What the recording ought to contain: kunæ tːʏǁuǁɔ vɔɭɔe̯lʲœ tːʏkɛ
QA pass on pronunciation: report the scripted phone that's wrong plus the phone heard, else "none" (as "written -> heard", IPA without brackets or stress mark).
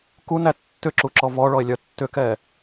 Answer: none